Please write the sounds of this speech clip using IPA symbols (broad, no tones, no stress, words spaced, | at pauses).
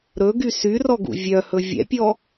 ɾɵɡy syrɔɡṵ vʲœhɵ vʲɛ̰pʲɔ